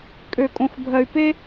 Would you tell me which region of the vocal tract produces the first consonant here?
velum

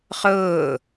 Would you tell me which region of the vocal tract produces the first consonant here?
uvula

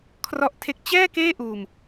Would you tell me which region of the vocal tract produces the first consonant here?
velum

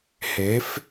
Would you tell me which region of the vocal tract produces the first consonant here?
throat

